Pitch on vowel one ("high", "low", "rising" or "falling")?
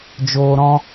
low